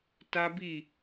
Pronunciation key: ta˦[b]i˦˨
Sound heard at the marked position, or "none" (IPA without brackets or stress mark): b